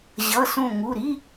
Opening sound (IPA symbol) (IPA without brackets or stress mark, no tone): ʑ